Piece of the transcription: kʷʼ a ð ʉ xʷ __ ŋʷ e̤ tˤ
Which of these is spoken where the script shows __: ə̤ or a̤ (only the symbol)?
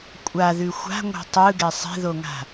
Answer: a̤